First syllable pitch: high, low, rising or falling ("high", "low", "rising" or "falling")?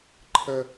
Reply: high